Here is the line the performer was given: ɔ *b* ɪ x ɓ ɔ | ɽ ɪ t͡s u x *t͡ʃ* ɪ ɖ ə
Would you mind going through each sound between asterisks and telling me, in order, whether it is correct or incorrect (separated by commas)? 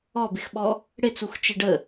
correct, correct